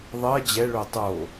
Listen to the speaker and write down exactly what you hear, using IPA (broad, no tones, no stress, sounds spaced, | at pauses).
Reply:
ðˤ ɜ d͡ʑ ɛ ɭ o tˤ o